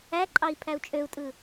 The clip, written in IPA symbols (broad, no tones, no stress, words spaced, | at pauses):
æǃʼɑi̯ pʰæu̯t͡ʃʼøu̯tʼɯ